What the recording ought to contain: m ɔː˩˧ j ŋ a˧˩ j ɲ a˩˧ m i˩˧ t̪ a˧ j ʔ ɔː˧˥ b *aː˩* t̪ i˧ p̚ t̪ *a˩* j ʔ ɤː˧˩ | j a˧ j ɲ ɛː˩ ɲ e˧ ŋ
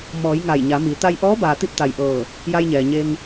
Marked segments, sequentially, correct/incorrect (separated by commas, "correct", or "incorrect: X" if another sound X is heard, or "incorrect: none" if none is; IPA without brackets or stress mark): correct, correct